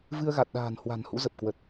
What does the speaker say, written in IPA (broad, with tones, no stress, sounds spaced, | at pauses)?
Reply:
v ɨ˧ ə̯ ɣ a˨˩ t̚ ɗ a̤ː˨˩ n h w a̤˨˩ n h ṵ˧˥ z ə˨˩ p̚ k w ə˨˩ t̚